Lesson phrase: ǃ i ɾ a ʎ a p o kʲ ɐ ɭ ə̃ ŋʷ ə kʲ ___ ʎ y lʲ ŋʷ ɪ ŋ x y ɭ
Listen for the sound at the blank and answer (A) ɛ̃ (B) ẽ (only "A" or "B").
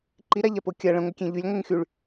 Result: B